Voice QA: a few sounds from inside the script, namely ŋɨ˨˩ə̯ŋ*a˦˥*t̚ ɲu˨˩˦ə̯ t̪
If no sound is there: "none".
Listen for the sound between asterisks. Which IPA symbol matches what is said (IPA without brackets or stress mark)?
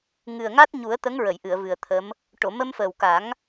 a˦˥